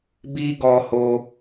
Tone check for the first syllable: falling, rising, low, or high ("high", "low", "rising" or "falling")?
high